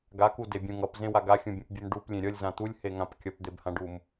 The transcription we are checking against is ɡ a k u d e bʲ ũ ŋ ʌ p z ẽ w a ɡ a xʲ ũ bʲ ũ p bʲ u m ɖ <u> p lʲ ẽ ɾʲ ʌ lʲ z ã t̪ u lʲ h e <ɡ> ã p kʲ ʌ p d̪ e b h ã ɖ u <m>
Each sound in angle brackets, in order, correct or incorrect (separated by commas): correct, incorrect, correct